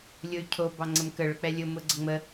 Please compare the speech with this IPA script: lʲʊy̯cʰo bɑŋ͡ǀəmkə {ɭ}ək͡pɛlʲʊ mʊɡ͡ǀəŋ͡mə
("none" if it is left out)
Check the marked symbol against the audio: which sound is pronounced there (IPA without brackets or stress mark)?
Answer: ɭ